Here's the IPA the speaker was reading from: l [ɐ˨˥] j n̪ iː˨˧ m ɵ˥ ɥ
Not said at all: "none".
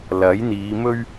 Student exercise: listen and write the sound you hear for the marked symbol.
ɐ˨˥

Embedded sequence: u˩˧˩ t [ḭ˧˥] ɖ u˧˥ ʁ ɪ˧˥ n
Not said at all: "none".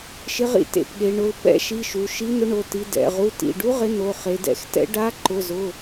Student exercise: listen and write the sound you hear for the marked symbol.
ḭ˩˧˩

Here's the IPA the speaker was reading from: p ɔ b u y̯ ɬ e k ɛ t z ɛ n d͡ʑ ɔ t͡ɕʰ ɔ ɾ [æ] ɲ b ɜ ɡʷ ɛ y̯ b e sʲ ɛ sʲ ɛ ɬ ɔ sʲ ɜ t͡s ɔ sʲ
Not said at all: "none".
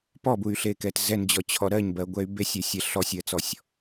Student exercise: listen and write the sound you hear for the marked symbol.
ɜ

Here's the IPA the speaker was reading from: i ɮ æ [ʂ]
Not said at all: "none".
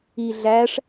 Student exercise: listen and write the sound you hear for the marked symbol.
ʂ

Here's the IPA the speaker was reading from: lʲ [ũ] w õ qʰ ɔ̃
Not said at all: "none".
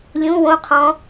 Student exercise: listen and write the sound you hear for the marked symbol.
ũ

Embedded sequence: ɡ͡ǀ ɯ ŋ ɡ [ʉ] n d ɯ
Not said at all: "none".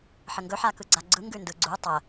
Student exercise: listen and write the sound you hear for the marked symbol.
ʉ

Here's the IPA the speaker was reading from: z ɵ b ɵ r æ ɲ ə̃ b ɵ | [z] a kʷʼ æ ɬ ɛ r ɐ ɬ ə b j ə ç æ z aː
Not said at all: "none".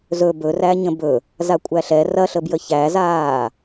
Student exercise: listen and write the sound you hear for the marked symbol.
z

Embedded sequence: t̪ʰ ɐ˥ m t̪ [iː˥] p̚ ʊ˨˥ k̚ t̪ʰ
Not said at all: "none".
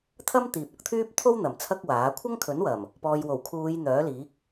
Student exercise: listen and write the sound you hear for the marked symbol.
iː˨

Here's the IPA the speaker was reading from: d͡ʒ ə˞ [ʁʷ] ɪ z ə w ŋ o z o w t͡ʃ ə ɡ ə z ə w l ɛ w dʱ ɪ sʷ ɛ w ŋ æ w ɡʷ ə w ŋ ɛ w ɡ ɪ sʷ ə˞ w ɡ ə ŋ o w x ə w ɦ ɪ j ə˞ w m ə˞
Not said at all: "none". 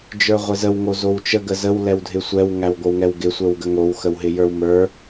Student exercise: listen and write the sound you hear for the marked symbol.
ʁʷ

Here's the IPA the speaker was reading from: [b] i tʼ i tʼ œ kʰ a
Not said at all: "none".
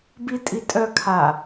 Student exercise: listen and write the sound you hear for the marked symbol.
b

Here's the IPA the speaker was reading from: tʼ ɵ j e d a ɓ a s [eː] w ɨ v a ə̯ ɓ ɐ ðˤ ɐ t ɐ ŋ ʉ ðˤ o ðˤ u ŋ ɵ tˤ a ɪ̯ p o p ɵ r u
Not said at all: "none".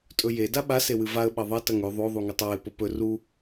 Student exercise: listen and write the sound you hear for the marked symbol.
e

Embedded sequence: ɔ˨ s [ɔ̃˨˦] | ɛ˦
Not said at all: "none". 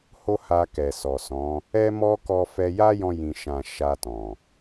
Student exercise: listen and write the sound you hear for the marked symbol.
ɔ̃˨˦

